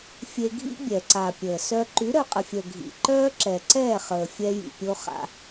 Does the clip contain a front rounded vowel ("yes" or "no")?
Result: yes